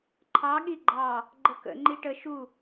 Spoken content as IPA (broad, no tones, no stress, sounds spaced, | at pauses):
ǃʰ ɑ ɠ i ɡ͡ǃ ɑ | ɡ͡ǃ ə k ə̰ ŋ͡ǃ i ʈ ə ʃ u